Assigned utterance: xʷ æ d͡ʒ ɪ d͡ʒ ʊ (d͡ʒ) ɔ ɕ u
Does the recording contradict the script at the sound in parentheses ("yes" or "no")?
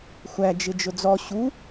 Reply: yes